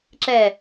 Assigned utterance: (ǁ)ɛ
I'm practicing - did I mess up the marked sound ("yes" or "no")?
no